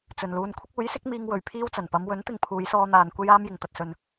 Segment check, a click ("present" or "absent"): absent